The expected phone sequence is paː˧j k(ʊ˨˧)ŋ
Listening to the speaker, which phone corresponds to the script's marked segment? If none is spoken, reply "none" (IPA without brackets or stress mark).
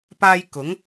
ʊ˨˥